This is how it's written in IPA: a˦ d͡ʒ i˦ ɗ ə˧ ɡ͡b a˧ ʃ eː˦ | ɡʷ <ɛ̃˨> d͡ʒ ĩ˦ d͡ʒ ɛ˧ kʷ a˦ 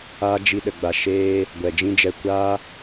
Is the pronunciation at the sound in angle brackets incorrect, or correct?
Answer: incorrect